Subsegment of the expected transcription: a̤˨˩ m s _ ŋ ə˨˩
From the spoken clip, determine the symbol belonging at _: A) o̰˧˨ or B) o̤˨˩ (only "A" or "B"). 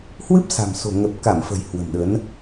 B